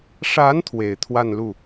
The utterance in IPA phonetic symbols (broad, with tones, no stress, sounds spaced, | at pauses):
ʂ a˧˥ n t̪ʰ w e˨˩ ɪ̯ t̪ʰ w a˥˧ n l u˥˩